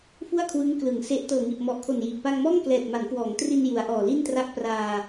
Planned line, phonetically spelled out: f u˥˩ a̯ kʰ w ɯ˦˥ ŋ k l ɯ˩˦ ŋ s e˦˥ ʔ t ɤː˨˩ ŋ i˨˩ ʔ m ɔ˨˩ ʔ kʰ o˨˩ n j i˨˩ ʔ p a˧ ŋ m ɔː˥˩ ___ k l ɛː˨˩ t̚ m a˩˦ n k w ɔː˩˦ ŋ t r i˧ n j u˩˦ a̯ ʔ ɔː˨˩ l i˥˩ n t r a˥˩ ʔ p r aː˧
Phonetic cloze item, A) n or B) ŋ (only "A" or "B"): B